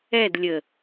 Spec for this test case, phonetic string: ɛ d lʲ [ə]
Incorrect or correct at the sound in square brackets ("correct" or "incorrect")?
correct